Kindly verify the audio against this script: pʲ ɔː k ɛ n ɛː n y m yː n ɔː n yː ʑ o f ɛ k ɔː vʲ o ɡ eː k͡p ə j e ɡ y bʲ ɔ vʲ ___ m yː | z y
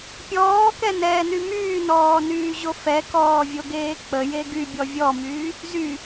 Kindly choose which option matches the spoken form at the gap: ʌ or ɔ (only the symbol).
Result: ɔ